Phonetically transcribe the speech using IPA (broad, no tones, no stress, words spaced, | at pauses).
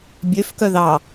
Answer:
bʲøfkœ ðɑ